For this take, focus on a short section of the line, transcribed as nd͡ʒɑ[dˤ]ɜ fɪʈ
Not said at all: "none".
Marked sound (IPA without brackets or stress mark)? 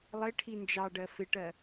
ɖ